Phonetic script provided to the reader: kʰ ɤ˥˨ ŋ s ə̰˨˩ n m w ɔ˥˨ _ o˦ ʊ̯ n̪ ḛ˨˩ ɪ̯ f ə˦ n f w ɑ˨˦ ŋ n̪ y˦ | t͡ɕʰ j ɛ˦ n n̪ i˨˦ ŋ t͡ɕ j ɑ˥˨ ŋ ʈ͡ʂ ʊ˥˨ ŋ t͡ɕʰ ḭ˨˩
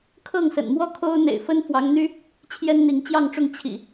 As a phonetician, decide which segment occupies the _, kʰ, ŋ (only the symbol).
kʰ